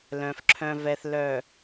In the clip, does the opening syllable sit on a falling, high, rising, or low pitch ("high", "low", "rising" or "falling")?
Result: low